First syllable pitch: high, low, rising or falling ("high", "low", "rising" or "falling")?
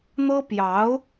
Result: high